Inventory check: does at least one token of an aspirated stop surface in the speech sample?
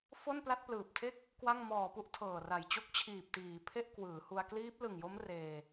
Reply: yes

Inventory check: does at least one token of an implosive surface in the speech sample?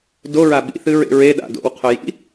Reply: yes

